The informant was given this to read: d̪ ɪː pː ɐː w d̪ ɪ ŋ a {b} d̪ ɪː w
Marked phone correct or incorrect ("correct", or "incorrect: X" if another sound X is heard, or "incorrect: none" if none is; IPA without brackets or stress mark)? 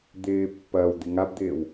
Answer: correct